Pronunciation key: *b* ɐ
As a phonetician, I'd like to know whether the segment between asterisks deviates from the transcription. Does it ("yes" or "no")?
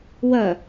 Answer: yes